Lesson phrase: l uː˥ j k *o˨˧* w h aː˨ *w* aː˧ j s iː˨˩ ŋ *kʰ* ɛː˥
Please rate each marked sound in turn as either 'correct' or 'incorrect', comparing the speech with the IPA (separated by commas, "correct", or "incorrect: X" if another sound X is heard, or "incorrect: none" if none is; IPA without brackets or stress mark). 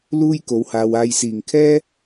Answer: correct, correct, correct